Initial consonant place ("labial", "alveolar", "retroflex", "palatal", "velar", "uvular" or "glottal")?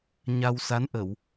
palatal